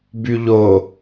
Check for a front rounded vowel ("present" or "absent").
present